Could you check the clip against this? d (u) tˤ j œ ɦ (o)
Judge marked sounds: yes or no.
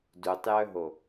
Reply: yes, yes

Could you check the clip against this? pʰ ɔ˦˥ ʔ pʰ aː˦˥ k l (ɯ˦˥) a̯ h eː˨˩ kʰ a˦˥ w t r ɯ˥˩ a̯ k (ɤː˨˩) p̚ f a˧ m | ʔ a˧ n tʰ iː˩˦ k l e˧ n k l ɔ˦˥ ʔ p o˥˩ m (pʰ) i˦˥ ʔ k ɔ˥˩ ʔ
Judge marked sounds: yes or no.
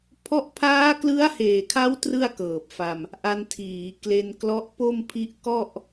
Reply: yes, yes, yes

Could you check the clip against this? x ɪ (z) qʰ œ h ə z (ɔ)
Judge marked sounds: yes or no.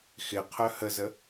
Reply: no, no

